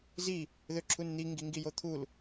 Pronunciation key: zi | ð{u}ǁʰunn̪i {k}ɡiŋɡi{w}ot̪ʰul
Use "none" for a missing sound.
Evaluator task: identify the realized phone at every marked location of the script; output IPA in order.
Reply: ø, ŋ, j

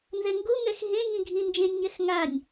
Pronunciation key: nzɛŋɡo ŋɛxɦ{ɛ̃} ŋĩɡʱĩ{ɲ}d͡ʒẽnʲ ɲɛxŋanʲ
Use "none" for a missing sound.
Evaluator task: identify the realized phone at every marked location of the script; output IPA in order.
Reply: ẽ, n

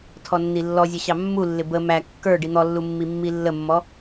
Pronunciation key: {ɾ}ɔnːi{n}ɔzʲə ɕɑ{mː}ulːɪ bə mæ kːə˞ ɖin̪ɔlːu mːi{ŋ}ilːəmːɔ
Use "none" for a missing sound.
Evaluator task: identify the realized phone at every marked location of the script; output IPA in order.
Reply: tʰ, lː, mː, mː

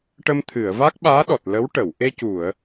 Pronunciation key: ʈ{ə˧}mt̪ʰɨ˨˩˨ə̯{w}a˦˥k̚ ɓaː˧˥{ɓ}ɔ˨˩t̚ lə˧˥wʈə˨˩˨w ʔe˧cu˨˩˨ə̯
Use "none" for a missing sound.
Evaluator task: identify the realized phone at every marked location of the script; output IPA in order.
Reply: ə˧, v, ɗ

